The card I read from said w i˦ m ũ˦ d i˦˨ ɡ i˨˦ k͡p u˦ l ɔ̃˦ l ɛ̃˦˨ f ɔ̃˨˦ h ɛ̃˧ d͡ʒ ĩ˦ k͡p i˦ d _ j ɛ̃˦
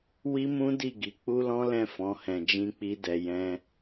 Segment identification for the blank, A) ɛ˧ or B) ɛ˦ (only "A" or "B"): A